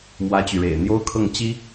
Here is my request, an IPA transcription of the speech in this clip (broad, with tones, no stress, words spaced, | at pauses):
mwä˥t͡ɕy˨ɻḛ˨˩ɪ̯ n̪jo˥ʊ̯kʰɤ˥˩ŋ t͡ɕi˥